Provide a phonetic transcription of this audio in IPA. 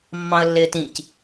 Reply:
mː ɑ̃ ə̯ lː ɪː t ĩ c

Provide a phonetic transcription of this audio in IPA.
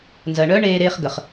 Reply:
n z ɜ˨ ɳ œ˦ ɳ eː˦ ɾ eː˦ χ ɡ ə˨ χ

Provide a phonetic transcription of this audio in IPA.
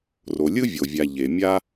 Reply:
r o˩ lʲ ɯ˥ vʲ o˩ vʲ a˩ ʎ e˩ mʲ a˥

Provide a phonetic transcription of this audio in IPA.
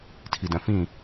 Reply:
tʰ i d œ̃ f ĩ

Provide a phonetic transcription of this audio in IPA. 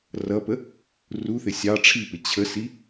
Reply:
r ʌ p ə | r u θ ɪ sʲ ɑ ʈ͡ʂʰ i p ɪ t͡ɕʰ ə s i

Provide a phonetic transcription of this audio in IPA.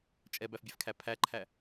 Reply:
t͡ʃʼ ɛ b æ f bʲ æ f kʰ æ pʰ æ ǃʰ æ

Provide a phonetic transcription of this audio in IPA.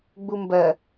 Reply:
ɡ͡b u m b ɜ

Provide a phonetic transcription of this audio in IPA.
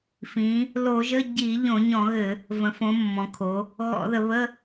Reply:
f ĩ˩˧ | l o˧˩˧ ʒ ə˧˥˧ ɟ i˧˩˧ ʎ õ˧˩˧ ɲ ɔ̃˧˩˧ ɣ ɘ˧˩˧ | v ə̃˩˧ f õ˩˧ mː ɔ̃˩˧ kʰ o˩˧ | ɣ ɔ̰˧˩˧ ð ə˩˧ β ə˧˥˧

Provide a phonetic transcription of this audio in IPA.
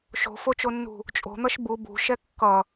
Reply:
ʃ o̤ f o t͡ʃ o nː ṳ | t͡ʃʼ o̤ n̪ ʌ ʃ b u b ṳ ʃ ɛ kː ʌ

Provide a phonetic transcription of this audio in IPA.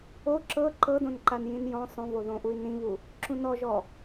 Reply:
o ǁ ɤ ǃ ɤ d õ n ǃ a n j ĩ n j ɔ̃ sˤ õ v o ð õ ʔ u i̯ n ĩ β u | ǁ ũ n ɔ ʒ ɔ

